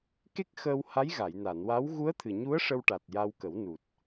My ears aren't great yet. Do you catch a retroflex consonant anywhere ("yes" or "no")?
yes